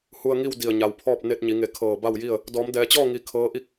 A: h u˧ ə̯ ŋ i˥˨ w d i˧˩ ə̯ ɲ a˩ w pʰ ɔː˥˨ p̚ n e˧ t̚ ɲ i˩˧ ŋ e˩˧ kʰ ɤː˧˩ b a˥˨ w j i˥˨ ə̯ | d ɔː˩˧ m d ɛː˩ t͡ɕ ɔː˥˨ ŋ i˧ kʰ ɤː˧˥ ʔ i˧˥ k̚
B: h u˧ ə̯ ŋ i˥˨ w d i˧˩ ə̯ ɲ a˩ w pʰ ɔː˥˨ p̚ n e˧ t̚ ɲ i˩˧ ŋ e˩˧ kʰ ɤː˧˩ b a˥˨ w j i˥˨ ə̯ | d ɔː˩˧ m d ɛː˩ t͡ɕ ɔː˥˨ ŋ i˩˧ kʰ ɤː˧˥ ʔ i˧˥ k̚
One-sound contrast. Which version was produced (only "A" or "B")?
A